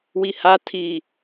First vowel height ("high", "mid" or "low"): high